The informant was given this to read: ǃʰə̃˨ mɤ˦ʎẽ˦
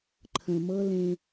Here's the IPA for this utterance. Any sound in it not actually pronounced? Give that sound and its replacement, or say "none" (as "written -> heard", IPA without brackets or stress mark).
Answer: ʎ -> l